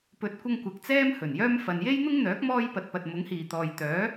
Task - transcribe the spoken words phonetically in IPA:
p ɵ˨˥ t̚ kʷ ɐ˧ ŋ kʷ ɐ˨ k̚ t͡s ɛː˥ m h ɵ˨˩ n j œː˥ m f ɐ˨ n j e˥ j n̪ ʊ˥ ŋ n̪ œː˨˥ k̚ m ɔː˥ j p ɐ˨ t̚ p ɐ˨ t̚ m ʊ˨˥ ŋ h iː˨ t̪ ɔː˨ j t̪ œː˨˥

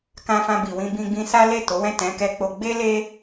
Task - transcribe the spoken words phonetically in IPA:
k ã˧ f ã˧ b i˨ w ĩ˧ b ĩ˧ ɡ͡b ĩ˧ s a˦ l e˦˨ t o˨˦ w ɛ̃˦˨ t ɛ̃˨˦ k ɛ˧ k͡p o˧ ɡ͡b e˦ l e˦

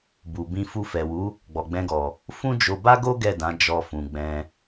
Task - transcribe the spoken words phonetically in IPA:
b u˨ b ĩ˧ f u˧ f ɛ˨ w u˨˦ | ɡ͡b ɔ˨ ɡ͡b ɛ̃˧ ɡ ɔ˨ | f ũ˦ d͡ʒ o˧ b a˦ ɡ o˦ ɡ ɛ˦˨ d ã˨˦ d͡ʒ ɔ˧ f ũ˨ ɡ͡b ɛ̃˧

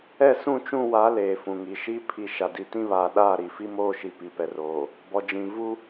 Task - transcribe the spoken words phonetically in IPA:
ɛ˦˨ s ũ˦˨ t͡ʃ ũ˦˨ w a˨˦ l eː˨ f ũ˨ ŋ i˨ ʃ i˦ pʰ i˨ ʃ a˨ d i˨˦ t ĩ˦ β aː˨ ɗ aː˦˨ ɾ i˨ f i˦ m oː˦˨ ʃ i˨ p i˨ p ɛ˨ r oː˨ | b ɔ˨ d͡ʒ ĩ˨ v u˦

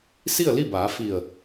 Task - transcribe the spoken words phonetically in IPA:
s i˥˨ ə̯ l i˥˨ b aː˩˧ f i˧˩ ə̯

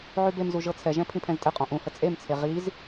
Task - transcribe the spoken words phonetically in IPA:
ʕ y b e m z u ʒ ɤ t͡sʰ ɛ ʒ ɛ̃ pʰ ĩ pʰ ɛ̃ z tʼ ɘ qʼ ɔ̃ ʔ ũ h ə t͡sʼ e m t͡sʰ e ʁ i z

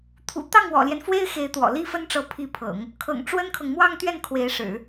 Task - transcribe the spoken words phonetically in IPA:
t̪ʰ ṵ˨˩ t̪ ɑ˥˩ ŋ w ɔ̰˨˩ l j ɛ˦ n f w e˥ ɪ̯ x e˧˥ ɪ̯ t̪ w ɔ̰˨˩ l i˥ f ə˥ n ʈ͡ʂ ɤ˧˥ pʰ i˧˥ pʰ ɤ̰˨˩˦ ŋ | kʰ ɤ̰˨˩ ŋ ʈ͡ʂ w ə˥ n kʰ ɤ˨ ŋ m w ɑ˥˧ ŋ t̪ ɥ ɛ˥˩ n kʰ w e˧˥ ɪ̯ ʂ ɻ̩˨˩˦

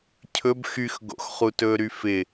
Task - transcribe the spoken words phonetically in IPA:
cʰ ɵ b x y x ɡ o̰ x χ u t ɵː ɾ y f ɪ

